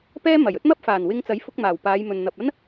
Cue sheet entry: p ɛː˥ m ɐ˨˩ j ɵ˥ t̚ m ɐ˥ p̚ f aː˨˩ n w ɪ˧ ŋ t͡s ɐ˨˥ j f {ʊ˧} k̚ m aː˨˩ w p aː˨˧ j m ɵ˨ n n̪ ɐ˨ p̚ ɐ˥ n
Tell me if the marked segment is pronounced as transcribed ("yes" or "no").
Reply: yes